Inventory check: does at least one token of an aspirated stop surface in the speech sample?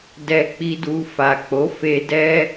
no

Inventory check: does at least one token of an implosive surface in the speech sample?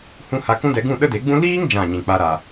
yes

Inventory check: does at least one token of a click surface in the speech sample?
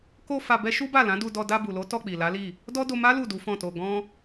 no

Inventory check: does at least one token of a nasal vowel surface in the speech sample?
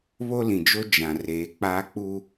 yes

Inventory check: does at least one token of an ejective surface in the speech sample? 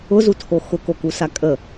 yes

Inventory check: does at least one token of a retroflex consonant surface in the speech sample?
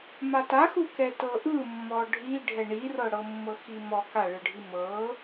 yes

